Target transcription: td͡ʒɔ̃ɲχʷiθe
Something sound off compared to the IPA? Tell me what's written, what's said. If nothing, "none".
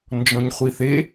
t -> n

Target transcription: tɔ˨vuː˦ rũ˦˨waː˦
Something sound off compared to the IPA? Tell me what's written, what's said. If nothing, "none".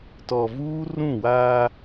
none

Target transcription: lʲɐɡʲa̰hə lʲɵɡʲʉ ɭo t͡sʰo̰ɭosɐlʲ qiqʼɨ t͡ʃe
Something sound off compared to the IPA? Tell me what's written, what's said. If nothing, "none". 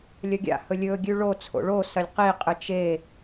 ə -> ɵ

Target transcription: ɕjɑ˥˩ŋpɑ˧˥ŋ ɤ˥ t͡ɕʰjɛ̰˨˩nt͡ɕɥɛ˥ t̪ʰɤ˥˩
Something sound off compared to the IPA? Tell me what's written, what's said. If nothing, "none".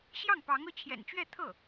ɛ˥ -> ɛ˥˧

